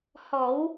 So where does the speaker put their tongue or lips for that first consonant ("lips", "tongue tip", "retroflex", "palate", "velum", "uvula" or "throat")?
throat